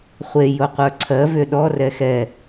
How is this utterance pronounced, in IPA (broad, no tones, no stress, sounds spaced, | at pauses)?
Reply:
χʷ e j o qʷ ə˞ ǀʰ ɜ v ʏ ɗ ɔ r ɛ x ɛ